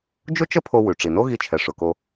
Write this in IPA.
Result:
d͡ʒ ʊ˥ t͡ʃ ə˥ pʰ o˧ w ʉ˩ ʈ͡ʂ i˩ n o˥ ɣ i˧ t͡ʃʰ ɛ˩ ʂ ʊ˩ k o˧

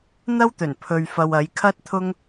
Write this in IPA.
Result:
n̪ ɐ˥ w t̪ ɵ˨˩ n pʰ ɵ˨ ɥ f ɐ˨ w ɐ˨˧ j kʰ ɐ˥ t̚ t̪ʰ ʊ˥ ŋ

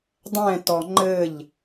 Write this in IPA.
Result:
dˤ ɛ̃ t ɔ ŋ͡ǃ ɘ ʎ

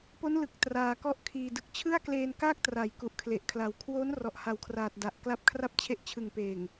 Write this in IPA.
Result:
p o˦˥ n l ɯ˨˩ k̚ t r aː˧ k ɔ˥˩ ʔ kʰ iː˧ d ɯ˨˩ k̚ t͡ɕʰ ɯ˥˩ a̯ k l eː˧ n k aː˥˩ k̚ t r a˩˦ j k u˨˩ ʔ kʰ l e˨˩ ʔ kʰ l a˨˩ w kʰ w oː˦˥ n r ɔ˨˩ ʔ h a˨˩ w kʰ r aː˨˩ t̚ d a˨˩ ʔ k l a˦˥ p̚ kʰ r a˥˩ p̚ t͡ɕʰ e˦˥ ʔ t͡ɕʰ ɯ˨˩ ŋ p eː˨˩ ŋ

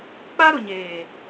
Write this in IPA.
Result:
k͡p a˦ ɾ ʊ˨ ɲ eː˨

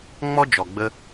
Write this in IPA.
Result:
ŋ͡m ɔ˦ d͡ʒ ɔ˨ ɡ͡b ə˧

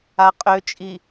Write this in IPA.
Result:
a qʼ ø t͡ʃʼ i

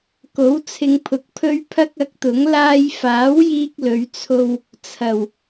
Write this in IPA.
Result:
k o˨˥ w t͡sʰ ɪ˧ ŋ pʰ ʊ˨˥ k̚ pʰ ɵ˥ ɥ pʰ ɐ˥ k̚ ɐ˨˥ k̚ t̪ ʊ˨˥ ŋ l aː˧ j f aː˨˥ w j iː˥ k̚ l ɵ˨˧ ɥ t͡sʰ o˧ w | t͡sʰ ɐ˨˩ w

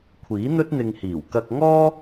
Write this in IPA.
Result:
kʷʰ iː˨˥ n̪ ɵ˥ t̚ n̪ ɪ˧ ŋ h iː˨˩ w k ɐ˧ k̚ ŋ ɔː˥

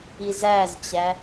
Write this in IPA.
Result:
i z æ z t͡ɕ æ

